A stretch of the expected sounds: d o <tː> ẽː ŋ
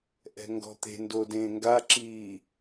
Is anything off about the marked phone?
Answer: yes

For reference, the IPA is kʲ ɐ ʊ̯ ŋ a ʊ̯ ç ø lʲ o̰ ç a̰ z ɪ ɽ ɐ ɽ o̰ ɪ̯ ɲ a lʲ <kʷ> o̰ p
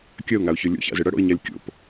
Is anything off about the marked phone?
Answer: yes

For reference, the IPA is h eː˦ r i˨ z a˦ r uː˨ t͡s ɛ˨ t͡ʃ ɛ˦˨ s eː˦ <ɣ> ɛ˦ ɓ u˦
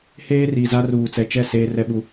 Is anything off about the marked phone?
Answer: yes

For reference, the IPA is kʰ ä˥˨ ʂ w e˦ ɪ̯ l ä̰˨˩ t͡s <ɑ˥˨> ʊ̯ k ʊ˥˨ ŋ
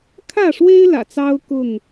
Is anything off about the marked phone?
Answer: yes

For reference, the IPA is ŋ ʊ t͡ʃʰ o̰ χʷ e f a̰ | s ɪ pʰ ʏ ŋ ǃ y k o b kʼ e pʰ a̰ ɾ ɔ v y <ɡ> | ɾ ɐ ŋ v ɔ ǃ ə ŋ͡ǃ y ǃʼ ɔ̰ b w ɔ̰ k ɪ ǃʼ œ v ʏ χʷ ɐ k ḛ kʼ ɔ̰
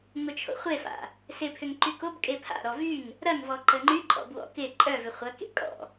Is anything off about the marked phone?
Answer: yes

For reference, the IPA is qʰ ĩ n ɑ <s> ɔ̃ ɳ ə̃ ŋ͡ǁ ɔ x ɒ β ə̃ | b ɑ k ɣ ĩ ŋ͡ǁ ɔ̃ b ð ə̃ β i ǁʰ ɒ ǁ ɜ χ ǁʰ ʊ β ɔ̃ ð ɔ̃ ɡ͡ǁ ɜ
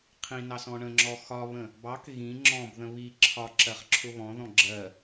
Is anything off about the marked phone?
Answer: no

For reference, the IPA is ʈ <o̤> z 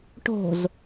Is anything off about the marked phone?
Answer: no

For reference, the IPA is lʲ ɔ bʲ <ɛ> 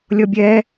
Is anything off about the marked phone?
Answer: no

